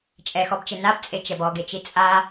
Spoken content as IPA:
t͡ʃʼɛxɔbt͡ʃe nabt͡sʼet͡ʃɛb ɔɡet͡ʃi t͡sʼa

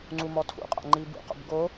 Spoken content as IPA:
ŋ͡ǀumɔtʰṵqʼa̰ ŋ͡ǃibṵqo̰b ɡo

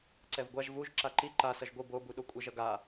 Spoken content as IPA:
ǀɛvɡʷaʒ vuʒ ǁaǃi ǃa sʌʒɡʷɯ bo buɗokʷʼʌʒ ʌɡa

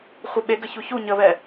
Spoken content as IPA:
χʷeɓeɡəçu çu ɲəβɛ

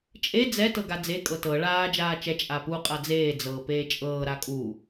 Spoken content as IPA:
t͡ʃʼe d͡zɛ tɤɡad͡ze kʼɤtɤ ɭaː d͡ʒaːt͡ʃɛ t͡ʃʼapu qʼad͡zeː d͡zɤːpeːt͡ʃʼɤː ɾakʼu

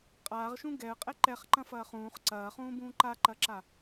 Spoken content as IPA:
qʼaːʁʃũ ɡɛə̯qʼɛ ǃɛχǃɐ̃fɐː χũːχ ǀɐːχũːbũː ǃaǃɐǁa

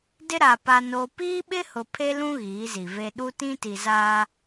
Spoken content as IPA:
dɪ˦ɾa˨ pa˦noː˦ piː˦ɓɪ˦hʊ˨ pʰe˦lũ˦ ɣiː˨˦zi˨ve˦ ɗu˦tĩ˦ti˨ zaː˦

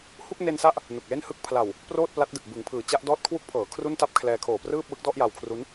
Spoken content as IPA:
hu˥˩k̚ne˧nsa˦˥ʔ | nu˨˩k̚le˥˩nhɯ˥˩k̚ pʰla˨˩w | proː˥˩t̚pla˦˥t̚dɯ˨˩k̚ bɯ˩˦ŋpʰɯː˩˦t͡ɕa˦˥ʔ dɔː˦˥t̚kʰwu˦˥k̚pʰɤː˩˦ kʰru˥˩nta˥˩p̚kʰlɛː˧ kʰoː˨˩prɯː˥˩p̚wɯ˦˥k̚dɔ˥˩ʔ ja˧wkʰru˦˥n

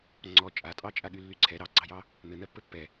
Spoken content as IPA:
ŋ͡ǀɔ t͡ʃʼatʼɑt͡ʃʼaɠy lːyǀʰɛ ɾɑɡ͡ǀɑjɑ | n̪ɘ n̪ɜpːɘpːɛ

